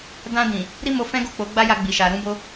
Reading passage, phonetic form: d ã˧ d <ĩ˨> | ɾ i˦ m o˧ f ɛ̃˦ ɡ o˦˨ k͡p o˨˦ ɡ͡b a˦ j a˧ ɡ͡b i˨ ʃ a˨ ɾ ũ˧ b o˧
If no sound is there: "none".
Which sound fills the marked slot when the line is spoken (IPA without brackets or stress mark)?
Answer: ĩ˨